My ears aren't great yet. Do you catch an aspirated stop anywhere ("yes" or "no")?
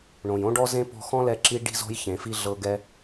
no